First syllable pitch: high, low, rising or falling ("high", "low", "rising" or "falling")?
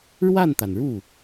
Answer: falling